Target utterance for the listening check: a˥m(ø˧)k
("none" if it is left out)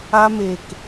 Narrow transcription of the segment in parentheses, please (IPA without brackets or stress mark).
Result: e˧